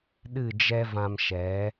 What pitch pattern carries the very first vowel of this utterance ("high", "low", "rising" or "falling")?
falling